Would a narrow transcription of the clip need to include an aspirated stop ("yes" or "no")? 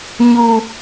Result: no